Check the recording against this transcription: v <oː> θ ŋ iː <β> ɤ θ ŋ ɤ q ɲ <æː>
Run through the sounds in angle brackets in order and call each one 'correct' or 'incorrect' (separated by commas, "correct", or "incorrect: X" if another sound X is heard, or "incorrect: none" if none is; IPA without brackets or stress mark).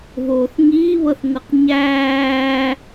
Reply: correct, correct, correct